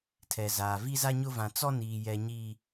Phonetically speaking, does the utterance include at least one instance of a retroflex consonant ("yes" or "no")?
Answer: no